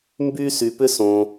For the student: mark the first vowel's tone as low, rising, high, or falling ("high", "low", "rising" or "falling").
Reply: high